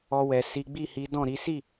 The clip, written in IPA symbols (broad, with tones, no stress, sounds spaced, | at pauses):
ɔ˧ w ɛ˨ s i˨˦ ɡ͡b i˦˨ h i˨˦ d ɔ̃˦˨ ɾ i˨˦ s i˦˨